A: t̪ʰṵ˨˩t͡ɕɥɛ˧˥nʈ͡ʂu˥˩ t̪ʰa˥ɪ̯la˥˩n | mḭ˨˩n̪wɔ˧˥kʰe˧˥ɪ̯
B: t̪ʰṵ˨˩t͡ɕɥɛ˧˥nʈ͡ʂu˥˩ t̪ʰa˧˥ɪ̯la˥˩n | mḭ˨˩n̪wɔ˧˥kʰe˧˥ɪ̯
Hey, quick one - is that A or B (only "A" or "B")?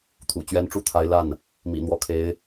B